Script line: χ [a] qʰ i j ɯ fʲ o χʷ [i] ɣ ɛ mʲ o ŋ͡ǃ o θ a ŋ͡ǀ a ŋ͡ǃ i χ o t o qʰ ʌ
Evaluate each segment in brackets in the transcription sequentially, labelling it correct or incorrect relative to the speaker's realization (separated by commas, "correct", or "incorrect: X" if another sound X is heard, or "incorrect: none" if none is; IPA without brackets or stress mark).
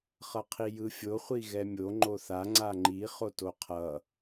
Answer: incorrect: ʌ, correct